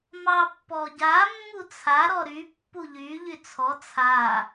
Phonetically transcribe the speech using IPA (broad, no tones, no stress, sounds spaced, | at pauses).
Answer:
m ɑ pː ɔ ɟ a mː u t͡sʰ a ɾ ɔ ɾ y pː u ʎ y ʎ y t͡sʰ ɔ t͡sʰ a